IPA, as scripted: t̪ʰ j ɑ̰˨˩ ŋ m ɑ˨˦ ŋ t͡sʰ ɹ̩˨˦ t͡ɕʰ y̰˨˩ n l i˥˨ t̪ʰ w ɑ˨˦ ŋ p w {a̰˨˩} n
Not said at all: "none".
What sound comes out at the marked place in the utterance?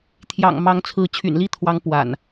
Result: a̰˨˩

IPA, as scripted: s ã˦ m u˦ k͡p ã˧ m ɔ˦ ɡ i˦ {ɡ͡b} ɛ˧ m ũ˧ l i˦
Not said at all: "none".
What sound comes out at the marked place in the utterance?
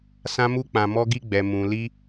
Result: ɡ͡b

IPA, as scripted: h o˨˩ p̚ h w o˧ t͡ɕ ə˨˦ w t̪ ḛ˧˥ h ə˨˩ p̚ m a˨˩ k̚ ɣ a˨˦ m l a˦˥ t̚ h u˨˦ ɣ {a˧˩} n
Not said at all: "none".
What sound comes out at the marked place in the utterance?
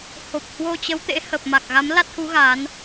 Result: a˨˦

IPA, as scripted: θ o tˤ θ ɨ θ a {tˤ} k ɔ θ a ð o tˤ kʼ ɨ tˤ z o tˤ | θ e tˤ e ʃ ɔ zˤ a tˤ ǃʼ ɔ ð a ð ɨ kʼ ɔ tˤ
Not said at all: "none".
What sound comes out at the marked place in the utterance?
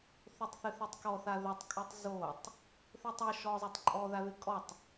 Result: tˤ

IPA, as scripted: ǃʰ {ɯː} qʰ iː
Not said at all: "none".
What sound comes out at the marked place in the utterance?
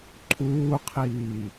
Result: uː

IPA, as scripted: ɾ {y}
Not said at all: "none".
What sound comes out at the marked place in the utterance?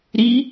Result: i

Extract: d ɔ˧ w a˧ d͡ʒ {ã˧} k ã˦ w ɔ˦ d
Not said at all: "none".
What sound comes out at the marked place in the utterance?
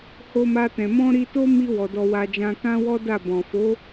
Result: ã˧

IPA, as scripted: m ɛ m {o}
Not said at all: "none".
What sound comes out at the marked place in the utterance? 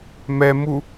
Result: u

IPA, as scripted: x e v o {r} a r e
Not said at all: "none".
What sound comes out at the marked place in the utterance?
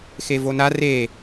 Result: n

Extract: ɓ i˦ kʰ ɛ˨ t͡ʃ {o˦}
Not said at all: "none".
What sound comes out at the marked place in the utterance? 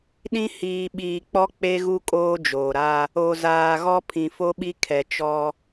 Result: ɔ˦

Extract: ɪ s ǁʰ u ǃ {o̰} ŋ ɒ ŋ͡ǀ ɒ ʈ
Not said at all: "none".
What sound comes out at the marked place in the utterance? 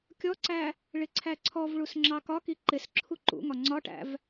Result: ṵ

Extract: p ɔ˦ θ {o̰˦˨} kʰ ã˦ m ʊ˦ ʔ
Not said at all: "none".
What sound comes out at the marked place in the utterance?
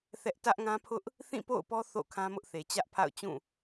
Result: o̰˦˨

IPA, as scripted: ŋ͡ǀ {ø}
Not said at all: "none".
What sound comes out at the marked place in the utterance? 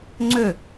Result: ø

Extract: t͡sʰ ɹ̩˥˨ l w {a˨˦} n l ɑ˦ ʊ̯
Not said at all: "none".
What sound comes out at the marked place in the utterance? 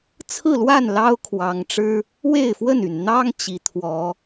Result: a˥˨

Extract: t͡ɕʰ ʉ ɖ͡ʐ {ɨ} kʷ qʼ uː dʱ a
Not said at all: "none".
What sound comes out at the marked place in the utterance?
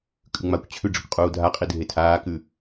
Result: ɨ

